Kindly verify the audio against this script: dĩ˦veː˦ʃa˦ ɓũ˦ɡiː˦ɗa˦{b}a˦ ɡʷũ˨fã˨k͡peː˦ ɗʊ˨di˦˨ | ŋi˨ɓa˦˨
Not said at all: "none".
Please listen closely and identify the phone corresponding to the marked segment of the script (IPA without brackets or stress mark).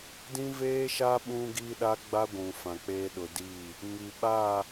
ɡ͡b